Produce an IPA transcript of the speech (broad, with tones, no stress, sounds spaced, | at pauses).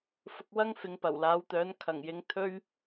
f ʊ˧ k̚ w ɐ˥ ŋ f ɪ˨˧ ŋ p ɐ˨˩ w l aː˨˥ w t̪ œː˨˥ n kʰ ɐ˨˩ ŋ j ɪ˨˥ ŋ t̪ʰ ɵ˥ ɥ